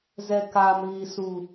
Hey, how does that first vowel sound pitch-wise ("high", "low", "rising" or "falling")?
high